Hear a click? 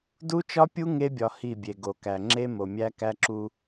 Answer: yes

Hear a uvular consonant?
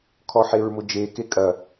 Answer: no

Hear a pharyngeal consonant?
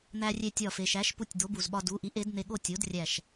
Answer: no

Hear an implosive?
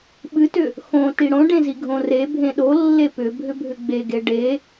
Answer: yes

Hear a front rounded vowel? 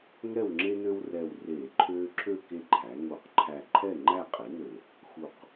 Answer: yes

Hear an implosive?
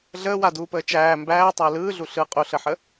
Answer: no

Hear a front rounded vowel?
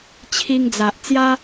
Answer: no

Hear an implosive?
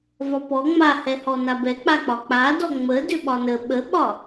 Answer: yes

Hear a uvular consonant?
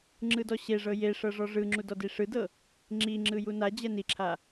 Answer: no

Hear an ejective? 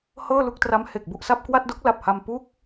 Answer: no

